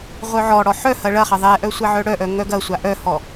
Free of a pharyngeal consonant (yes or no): no